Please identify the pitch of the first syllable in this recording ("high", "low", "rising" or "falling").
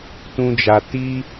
high